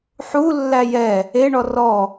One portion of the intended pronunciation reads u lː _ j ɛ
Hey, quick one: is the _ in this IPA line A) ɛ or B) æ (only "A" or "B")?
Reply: B